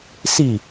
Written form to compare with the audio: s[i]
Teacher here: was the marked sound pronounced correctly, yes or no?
yes